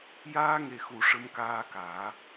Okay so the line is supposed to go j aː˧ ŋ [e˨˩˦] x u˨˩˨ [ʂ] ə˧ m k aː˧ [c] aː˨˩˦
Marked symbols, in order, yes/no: no, yes, no

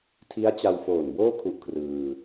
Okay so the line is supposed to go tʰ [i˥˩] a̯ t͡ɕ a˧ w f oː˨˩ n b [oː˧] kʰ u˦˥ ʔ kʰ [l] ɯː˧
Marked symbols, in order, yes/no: no, no, no

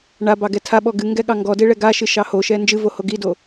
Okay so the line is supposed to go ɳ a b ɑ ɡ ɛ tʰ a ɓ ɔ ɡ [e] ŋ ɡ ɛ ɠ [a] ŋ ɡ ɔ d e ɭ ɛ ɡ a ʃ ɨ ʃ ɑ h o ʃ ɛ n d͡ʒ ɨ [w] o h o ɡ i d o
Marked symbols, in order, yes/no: no, no, no

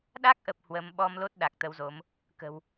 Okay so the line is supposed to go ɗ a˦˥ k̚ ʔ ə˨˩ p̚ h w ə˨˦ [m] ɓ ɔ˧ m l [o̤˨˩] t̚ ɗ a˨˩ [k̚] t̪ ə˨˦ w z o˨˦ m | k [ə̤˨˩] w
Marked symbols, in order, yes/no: yes, no, yes, yes

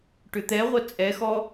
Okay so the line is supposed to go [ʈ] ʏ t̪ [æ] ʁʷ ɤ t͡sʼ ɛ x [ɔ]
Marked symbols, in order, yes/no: yes, no, yes

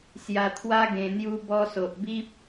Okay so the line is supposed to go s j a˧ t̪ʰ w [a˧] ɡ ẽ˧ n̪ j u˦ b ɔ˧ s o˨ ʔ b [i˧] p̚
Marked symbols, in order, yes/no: no, no

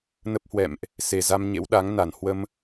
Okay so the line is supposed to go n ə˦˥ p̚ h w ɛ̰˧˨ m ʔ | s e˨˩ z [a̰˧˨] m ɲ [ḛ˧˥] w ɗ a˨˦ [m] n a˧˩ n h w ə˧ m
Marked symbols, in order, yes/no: no, yes, no

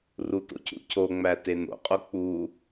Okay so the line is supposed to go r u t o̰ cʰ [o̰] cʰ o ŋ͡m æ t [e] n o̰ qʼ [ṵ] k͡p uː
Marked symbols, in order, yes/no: no, yes, no

